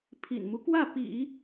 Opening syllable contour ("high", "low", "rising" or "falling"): low